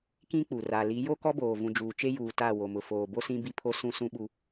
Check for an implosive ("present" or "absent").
present